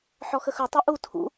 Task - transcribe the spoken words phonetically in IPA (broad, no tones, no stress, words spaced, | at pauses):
ħɔxəxɵ tˤɵʔu tʰṵ